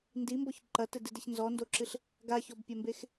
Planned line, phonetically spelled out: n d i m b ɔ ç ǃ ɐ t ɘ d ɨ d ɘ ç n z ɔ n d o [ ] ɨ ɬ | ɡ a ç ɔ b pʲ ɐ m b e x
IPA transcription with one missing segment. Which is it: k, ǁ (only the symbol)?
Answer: ǁ